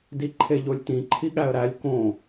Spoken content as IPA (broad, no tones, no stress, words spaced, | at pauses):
diǃʰeʎolʲtĩ ǃʰiɠæə̯ɾælʲ kõ